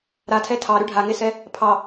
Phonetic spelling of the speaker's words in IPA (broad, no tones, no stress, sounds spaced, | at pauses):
ɾ a tʰ ɛ tʰ ɑ ɾ ʉ ɖʱ a ŋ e s ɛ | pʰ ɑ